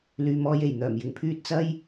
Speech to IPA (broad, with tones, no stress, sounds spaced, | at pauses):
l yː˨ m ɔː˧ j e˨˩ j n̪ œː˨˩ m j ɪ˨ ŋ pʰ yː˧ t̚ t͡s ɐ˥ j